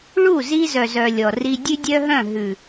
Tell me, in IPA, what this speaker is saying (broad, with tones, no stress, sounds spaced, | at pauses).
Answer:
ɭ u˦˨ z i˦ z œ˨ z œ˨ lʲ ɔ˨ r i˦ dʲ ʉ˦ dʲ œ˦ ɦ œ̃˦˨ ɦ ʉ˨